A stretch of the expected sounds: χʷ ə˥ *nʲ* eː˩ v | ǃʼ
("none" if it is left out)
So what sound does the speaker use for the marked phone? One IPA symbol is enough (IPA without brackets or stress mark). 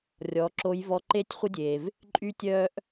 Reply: dʲ